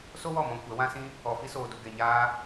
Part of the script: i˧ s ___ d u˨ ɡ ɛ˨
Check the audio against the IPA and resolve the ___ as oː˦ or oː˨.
oː˨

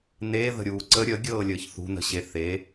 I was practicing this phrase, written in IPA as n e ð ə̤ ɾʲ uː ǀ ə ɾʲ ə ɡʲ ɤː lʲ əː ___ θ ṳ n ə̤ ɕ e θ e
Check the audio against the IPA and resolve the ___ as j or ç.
ç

